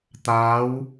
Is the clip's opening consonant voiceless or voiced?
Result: voiceless